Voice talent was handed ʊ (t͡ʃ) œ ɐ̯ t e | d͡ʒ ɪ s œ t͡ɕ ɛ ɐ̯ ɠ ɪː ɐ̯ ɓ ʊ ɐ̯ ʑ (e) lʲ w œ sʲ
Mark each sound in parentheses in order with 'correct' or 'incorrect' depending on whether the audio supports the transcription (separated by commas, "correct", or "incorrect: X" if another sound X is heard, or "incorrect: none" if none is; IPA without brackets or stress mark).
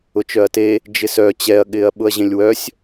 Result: correct, incorrect: ẽ